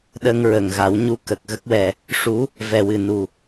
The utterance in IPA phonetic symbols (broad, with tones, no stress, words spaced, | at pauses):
ɗə˧ŋɹə˨˩ŋɣa˨˩˦w ɲu˧˥kə˨˩k̚ ɣə˦˥k̚wɛ˨˩ | ʂu˧˥ | vɛ˨˩wɨ˨˩nu˨˩